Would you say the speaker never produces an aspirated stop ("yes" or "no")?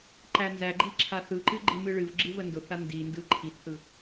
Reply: no